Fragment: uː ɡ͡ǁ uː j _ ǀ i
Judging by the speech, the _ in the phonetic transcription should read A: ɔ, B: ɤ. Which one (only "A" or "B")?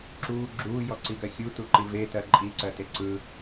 A